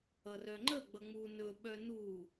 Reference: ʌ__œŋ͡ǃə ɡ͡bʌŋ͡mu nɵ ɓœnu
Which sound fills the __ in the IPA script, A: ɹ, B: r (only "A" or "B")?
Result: B